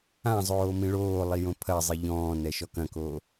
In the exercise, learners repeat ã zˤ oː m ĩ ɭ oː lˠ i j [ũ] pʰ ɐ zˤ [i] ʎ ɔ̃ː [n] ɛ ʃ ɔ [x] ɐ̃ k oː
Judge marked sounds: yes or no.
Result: no, yes, yes, no

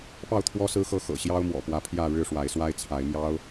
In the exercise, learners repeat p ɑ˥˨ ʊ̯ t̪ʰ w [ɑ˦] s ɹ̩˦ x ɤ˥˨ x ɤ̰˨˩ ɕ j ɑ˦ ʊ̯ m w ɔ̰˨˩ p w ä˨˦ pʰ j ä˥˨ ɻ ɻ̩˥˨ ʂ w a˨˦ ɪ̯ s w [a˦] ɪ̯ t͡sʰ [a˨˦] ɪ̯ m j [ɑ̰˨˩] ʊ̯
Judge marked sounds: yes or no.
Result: no, yes, yes, no

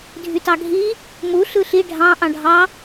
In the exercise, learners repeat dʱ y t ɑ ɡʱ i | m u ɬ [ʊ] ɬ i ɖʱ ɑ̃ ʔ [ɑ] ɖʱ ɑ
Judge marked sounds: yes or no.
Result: no, no

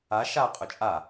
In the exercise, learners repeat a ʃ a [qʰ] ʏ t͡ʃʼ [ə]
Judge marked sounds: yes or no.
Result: no, no

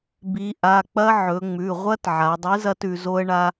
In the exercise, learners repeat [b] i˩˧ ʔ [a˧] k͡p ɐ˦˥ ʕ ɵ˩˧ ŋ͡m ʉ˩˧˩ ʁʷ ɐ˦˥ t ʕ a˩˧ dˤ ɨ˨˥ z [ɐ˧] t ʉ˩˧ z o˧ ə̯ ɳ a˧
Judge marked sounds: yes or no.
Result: yes, no, yes

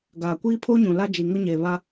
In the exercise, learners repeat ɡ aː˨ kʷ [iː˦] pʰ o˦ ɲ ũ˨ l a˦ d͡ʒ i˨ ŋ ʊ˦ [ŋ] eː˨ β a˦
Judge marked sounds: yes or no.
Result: yes, no

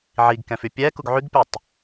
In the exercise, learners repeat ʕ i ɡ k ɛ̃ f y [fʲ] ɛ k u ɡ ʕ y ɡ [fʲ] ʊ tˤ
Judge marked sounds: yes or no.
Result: no, no

